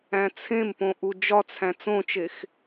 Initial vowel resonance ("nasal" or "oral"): nasal